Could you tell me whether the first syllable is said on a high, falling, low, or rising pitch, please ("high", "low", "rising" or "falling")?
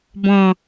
low